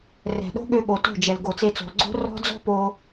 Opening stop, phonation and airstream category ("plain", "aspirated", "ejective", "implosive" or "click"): implosive